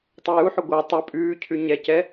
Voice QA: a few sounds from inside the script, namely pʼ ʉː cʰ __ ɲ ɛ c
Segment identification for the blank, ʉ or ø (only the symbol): ʉ